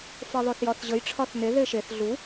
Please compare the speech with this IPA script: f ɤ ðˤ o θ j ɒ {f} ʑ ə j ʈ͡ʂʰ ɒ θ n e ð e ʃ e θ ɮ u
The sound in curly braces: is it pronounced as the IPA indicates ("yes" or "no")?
no